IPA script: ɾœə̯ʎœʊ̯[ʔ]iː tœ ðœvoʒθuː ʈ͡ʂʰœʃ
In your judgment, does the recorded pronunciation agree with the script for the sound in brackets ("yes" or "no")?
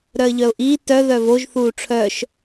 yes